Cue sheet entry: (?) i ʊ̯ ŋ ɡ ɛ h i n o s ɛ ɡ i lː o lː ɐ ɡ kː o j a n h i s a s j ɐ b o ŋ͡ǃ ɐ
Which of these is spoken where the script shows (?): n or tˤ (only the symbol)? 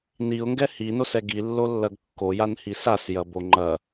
n